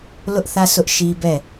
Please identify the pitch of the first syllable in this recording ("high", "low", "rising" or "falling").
high